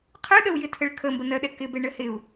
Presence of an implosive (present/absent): present